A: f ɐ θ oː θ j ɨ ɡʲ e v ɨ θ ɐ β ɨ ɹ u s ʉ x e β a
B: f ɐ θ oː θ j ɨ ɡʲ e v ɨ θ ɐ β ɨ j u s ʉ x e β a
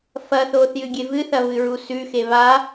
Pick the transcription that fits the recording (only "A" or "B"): A